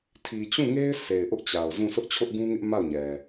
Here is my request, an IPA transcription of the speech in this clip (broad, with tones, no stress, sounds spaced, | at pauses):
tʰ i˨ t͡ɕ ũ˦˨ ŋ e˦ ɪ̯ sʰ e˨ ɪ̯ ʔ ʊ˦ ʔ t͡ɕ a˨ ʊ̯ z ũ˦˨ sʰ ʊ˦ ʔ t͡ɕʰ ʊ˦ ʔ ɡ ũ˦ ŋ ɪ˦ ʔ m a˦˨ ʊ̯ ɲ ɛ˨